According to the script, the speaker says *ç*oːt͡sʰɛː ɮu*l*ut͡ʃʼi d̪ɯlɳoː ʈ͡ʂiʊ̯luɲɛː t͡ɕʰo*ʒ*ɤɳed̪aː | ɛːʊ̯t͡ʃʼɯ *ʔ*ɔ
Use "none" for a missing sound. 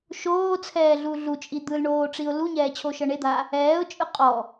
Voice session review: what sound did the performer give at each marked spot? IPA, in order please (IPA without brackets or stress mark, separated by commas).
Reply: ʃ, ɮ, ʃ, qʼ